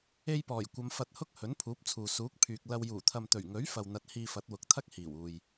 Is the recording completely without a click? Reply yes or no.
yes